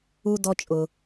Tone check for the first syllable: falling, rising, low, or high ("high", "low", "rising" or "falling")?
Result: high